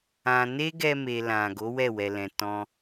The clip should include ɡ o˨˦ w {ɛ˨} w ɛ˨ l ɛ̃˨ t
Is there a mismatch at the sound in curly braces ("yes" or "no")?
yes